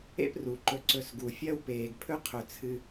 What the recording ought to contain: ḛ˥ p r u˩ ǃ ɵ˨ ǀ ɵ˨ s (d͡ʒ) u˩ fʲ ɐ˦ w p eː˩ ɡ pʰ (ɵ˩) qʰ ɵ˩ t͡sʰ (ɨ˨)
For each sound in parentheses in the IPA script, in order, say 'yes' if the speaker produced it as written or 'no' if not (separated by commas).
no, no, yes